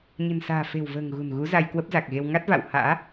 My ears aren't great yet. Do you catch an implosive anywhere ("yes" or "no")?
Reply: no